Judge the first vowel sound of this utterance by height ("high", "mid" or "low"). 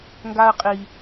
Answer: low